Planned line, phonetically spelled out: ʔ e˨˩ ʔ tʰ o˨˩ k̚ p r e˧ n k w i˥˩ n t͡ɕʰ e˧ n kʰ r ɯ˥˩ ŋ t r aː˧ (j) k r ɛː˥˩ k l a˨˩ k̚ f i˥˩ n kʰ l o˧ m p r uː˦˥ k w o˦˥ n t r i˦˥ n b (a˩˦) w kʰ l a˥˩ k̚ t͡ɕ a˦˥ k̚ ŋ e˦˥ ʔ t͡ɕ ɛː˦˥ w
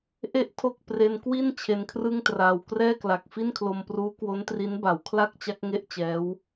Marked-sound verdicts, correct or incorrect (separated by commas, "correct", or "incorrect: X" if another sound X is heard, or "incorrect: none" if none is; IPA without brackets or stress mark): incorrect: w, correct